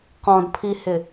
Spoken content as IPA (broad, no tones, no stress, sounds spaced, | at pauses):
q ɔ̃ d pʰ i h ɪ